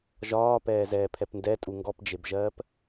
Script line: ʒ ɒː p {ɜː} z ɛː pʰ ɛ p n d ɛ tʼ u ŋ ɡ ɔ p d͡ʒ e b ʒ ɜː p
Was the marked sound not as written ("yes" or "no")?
yes